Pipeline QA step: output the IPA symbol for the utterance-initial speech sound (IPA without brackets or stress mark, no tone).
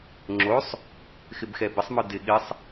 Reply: ŋ͡ǁ